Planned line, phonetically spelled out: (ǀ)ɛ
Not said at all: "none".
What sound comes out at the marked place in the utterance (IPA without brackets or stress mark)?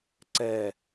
ǀ